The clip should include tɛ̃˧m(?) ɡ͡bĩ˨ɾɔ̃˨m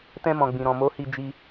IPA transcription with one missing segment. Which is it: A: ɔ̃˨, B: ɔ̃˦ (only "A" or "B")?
A